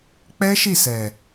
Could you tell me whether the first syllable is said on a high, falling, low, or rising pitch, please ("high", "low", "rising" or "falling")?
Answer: high